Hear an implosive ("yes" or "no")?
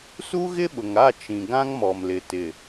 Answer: yes